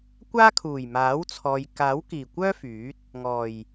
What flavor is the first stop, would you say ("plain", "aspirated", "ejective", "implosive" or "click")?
plain